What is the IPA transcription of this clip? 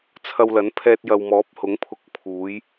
t͡sʰɐ˧wlɐ˨˥n pʰɛː˧t̚jɐ˨wmɔː˨˥p̚ hʊ˨˥ŋpʰʊ˧k̚ pʰuː˨˥j

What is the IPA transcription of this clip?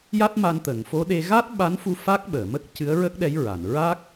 ja˦˥t̚ma˧nt̪əː˨˩˨ŋ fo˧˥ɗe˧ ɣa˦˥t̚ɓa˧˥nfu˧ fa˦˥k̚ɓəː˨˩˨mə˦˥k̚ cɨ˧˥ə̯ɹə˦˥k̚ɗɛ˧˥jɹa˨˩˨n ɹa˦˥k̚

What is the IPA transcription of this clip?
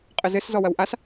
qʼɘzɘs zɔwɐwʔas

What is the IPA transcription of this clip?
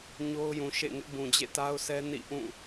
ɲo˦ʊ̯jũ˨ʃḛ˦˨ŋɪ˦ʔ bũ˨d͡ʑḛ˦˨ta˦ʊ̯sʰɛ˦ nḭ˦˨ʔũ˦˨

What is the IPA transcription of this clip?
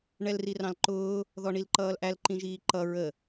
ɳɛlrirɑ̃lǃʊː | ðɔɳilǃʌːlʔæl ǃĩʒiːǃʌ ɹə

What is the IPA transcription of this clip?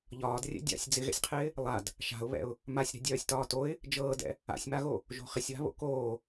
ʎɒːdrʲɛ̰ dʲa̰sʲ d͡zɪɣɛ̰sʲqʰɪː | lˠad | ʃa̤ʊ̯βɛ̰ʊ̯ | masʲɾɛ̤dʲœːsʲ tɒːtoɪ̯ | d͡ʒɤːdɛ̰ | a̰sʲmaɣo | ʒo̤χɪsʲwa̤βo̰ koː

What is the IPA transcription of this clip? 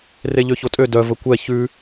reʎøçotʼø dœ vəkʷɛ çʉ

